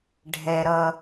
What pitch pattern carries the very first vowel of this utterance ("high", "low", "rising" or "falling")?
low